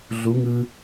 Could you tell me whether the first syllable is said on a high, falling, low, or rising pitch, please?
rising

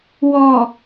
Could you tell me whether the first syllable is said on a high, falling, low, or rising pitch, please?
low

